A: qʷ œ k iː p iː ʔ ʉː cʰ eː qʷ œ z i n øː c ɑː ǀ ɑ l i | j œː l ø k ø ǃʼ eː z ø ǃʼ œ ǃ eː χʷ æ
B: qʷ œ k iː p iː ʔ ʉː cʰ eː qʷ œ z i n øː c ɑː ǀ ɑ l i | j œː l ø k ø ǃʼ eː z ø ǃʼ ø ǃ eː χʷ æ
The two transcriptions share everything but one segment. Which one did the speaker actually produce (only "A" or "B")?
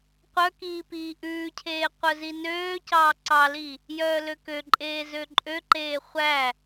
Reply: B